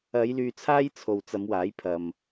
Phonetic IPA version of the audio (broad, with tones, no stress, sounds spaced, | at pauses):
ɐ˨˧ j l yː˨ t͡sʰ aː˥ j t͡sʰ o˨ w t͡s ɐ˨˧ m w aː˨˥ j pʰ ɐ˧ m